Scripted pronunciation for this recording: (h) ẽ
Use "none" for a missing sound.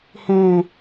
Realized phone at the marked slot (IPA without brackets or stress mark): h